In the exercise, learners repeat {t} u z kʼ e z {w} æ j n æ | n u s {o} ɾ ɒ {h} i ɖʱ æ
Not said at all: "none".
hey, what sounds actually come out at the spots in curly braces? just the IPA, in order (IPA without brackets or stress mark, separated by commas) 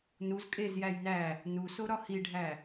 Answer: n, j, o, h